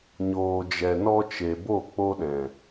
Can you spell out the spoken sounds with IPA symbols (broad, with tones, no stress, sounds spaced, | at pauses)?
ɲ oː˨ d͡ʒ ɛ˨ n ɔ˧ t͡ʃ e˨ b o˦˨ k͡p o˧ ɗ ɛ̃˨